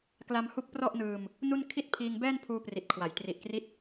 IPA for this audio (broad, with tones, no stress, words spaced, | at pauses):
kla˧mhu˦˥k̚ prɔ˥˩ʔnɯː˧m | nu˥˩n kʰi˥˩t̚pʰiː˧ŋ bɛː˥˩npʰuː˧pri˨˩t̚kʰwa˩˦j tri˨˩ʔkri˦˥t̚